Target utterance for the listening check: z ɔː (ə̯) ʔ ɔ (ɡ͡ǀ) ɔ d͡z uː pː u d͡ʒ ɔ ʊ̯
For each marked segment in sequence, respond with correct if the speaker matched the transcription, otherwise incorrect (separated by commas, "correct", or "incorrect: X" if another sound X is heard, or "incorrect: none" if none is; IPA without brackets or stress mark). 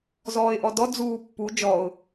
incorrect: ɪ̯, incorrect: d